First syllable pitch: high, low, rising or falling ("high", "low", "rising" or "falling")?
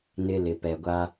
high